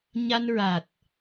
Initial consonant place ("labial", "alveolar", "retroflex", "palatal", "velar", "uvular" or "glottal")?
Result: palatal